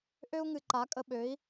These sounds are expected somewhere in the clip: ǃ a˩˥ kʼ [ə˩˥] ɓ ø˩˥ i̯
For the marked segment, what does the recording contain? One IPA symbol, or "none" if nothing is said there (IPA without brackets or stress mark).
ə˨